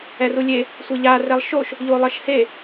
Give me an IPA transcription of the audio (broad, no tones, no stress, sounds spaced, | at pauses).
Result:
ɛ r u lʲ e | sʷ e ʎ a r ɛ lˠ ʃ o ʃ | ʎ o lˠ ʌ ʃ h e